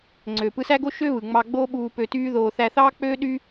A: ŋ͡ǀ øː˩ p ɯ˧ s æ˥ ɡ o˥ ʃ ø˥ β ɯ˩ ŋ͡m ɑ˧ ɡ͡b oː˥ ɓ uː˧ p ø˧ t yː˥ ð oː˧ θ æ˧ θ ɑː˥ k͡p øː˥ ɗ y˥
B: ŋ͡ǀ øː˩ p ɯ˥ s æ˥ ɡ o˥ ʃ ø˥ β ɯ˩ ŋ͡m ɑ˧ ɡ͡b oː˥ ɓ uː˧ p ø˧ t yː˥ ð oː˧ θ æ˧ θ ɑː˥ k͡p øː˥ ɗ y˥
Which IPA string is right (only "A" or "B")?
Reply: A